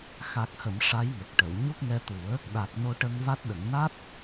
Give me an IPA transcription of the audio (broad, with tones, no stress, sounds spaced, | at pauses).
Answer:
x a˨˩ k̚ h ə˨˩˨ m ʂ a˧˥ j ŋ ə˨˩ k̚ ʈ ə˨˩˨ w ɲ u˦˥ k̚ ŋ ɛ˧ t̪ u˨˩˦ ə̯ | ɗ a˨˩ k̚ n o˧ ʈ ə˧ ŋ v a˦˥ t̚ ɗ ə˨˩˨ ŋ n a˦˥ t̚